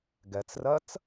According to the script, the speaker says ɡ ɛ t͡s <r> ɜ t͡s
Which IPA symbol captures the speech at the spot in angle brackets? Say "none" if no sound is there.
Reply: r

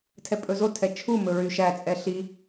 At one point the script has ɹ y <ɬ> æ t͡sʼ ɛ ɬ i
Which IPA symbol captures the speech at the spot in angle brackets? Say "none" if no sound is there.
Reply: ʃ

